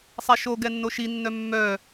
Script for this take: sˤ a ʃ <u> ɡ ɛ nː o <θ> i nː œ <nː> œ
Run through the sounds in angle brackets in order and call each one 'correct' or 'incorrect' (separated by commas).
incorrect, incorrect, incorrect